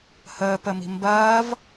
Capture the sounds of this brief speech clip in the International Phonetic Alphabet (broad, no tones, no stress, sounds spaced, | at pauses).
h əː p ə m i̤ m b ɐː v